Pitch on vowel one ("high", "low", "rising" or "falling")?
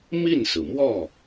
falling